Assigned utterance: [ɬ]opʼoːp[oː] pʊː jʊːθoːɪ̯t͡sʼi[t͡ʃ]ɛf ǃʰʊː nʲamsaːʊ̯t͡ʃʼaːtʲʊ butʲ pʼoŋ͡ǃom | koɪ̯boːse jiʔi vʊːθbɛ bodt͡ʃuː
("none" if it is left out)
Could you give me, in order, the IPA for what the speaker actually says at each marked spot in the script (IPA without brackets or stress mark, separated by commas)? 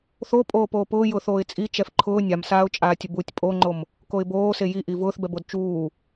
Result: θ, oː, t͡ʃ